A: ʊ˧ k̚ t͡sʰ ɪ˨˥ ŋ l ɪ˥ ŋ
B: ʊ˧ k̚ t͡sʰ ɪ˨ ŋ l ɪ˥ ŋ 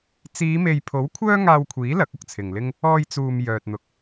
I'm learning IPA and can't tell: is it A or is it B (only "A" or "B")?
B